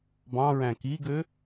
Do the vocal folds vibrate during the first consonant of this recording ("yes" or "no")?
yes